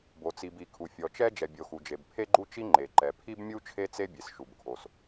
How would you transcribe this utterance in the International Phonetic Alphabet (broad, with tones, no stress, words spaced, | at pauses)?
bo˩t͡si˩b i˩kʰu˩ fʲɔ˩t͡ʃɛ˥ d͡ʒɛ˩bʲo˩ xu˩d͡ʒe˩b pʰe˥ɡ͡ǃu˥t͡ʃi˥ ŋ͡ǃe˩ǃɛ˩ pʰi˥bmʲu˥ t͡ʃʰe˥t͡se˥bʲe˩s ʃu˩bkʰo˩s